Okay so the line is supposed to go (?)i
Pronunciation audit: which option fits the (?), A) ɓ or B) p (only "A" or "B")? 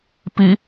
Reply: B